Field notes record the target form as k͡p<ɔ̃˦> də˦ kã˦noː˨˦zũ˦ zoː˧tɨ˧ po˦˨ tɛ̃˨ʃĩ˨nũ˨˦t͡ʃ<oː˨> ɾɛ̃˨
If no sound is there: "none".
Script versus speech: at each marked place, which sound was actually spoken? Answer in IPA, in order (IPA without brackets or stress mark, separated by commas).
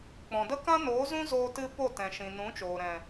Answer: ɔ̃˨, oː˨